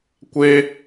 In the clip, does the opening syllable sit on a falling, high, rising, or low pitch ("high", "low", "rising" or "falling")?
high